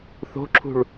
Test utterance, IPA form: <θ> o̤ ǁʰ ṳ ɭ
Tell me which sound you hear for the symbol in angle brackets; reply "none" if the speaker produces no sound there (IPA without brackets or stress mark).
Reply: θ